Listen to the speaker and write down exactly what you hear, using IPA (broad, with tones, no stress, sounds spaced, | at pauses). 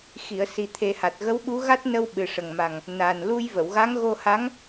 x i˨˩˨ ə̯ s i˨˩ t̪ʰ e˨˩ h a˨˩ t̚ ɣ ə˧˥ w ɓ u˧˥ ɣ a˦˥ t̚ n ə˧ w ɓ ɨ˨˩ ʂ ə˨˩ ŋ m a˨˩ ŋ | n a˨˩ n l u˧ j v ə˨˩˨ w ɣ a˧˥ ŋ ɣ o˧ h a˧˥ ŋ